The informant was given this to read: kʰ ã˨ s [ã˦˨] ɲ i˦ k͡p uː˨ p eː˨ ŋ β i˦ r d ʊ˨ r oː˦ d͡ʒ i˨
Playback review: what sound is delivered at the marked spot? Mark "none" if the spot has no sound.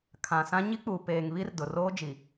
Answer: ã˦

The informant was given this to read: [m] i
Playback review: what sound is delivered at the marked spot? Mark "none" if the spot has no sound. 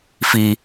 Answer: f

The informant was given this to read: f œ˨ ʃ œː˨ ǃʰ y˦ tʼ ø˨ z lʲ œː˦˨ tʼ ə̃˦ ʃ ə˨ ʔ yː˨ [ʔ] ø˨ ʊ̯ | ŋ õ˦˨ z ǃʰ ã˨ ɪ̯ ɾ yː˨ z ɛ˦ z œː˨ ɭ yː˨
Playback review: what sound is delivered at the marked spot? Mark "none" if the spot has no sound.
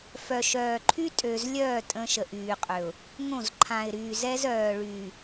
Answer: qʼ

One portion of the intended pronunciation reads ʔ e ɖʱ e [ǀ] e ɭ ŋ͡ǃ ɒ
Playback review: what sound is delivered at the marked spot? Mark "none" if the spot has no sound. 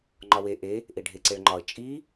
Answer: ǀ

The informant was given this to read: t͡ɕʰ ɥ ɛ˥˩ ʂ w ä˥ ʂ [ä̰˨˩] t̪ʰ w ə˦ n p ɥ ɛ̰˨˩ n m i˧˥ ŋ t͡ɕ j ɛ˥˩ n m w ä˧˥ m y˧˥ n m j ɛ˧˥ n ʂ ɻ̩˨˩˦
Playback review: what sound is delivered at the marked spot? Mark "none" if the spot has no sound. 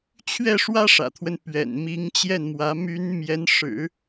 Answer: ä̰˨˩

